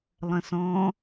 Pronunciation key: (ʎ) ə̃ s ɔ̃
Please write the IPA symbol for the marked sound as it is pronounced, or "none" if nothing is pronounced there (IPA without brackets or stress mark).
lˠ